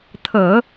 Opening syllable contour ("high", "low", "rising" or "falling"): low